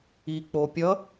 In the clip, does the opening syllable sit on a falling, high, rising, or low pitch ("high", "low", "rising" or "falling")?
low